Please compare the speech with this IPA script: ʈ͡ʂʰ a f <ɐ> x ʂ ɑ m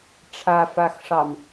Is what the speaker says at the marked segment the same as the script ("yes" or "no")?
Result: no